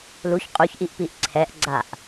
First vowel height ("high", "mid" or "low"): high